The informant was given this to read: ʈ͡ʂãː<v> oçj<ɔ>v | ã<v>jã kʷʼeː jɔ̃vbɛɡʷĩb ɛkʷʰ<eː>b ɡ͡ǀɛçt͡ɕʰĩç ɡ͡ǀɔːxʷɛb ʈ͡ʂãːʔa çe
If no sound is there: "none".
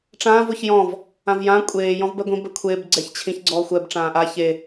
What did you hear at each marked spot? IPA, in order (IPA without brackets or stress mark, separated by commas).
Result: v, ɔ̃, v, eː